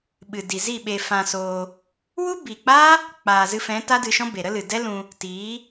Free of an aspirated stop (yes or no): yes